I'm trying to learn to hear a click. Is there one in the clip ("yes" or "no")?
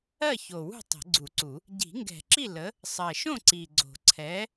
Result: yes